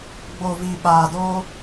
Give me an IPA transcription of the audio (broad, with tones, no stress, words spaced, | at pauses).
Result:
ɡ͡bo˨vi˨ ɓaː˨do˦